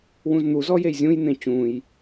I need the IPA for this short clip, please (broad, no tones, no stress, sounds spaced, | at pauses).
w ũ z n̪ u z ɔ j e j zʲ ũ j n̪ ẽ t͡ɕ ũ j